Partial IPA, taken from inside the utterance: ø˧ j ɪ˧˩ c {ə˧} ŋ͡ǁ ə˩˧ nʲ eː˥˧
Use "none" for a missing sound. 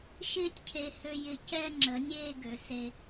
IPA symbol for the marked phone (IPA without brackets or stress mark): ɛ˧